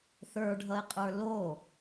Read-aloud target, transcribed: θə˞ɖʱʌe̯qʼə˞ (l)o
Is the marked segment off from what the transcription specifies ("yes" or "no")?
no